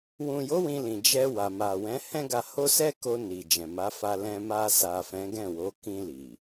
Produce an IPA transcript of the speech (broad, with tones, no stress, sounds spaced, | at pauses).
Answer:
w ũ˨ j o˨˦ w ĩ˧ l ĩ˨ d͡ʒ ɛ˧ w a˨ m a˨ w ɛ̃˨˦ h ɛ̃˦ ɡ a˧ h o˦ s ɛ˦ k o˧ n i˨ d͡ʒ ɛ̃˨ m a˨˦ f a˧ l ɛ̃˧ m a˧ s a˨ f ɛ̃˨˦ ɡ ɛ̃˦˨ w o˨˦ k ĩ˧ l i˨